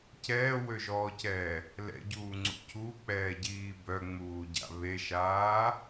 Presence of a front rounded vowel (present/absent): present